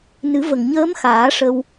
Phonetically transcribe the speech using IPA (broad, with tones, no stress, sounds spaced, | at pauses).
n ɨ˨˩˦ v ə˨˩ ŋ ɲ əː˧˥ m x aː˨˩˦ ʂ ə˧ w